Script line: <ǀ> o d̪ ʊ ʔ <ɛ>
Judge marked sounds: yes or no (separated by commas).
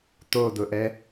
no, yes